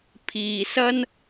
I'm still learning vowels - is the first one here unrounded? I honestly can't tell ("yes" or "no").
yes